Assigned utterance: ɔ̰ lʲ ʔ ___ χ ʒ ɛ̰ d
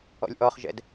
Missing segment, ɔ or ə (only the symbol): ɔ